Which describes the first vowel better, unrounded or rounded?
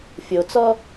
rounded